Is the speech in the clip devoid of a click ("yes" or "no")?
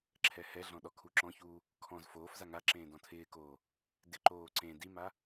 no